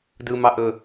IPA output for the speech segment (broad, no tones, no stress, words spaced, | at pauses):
dɯmɑʔɵ